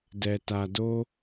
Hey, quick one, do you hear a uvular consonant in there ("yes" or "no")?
no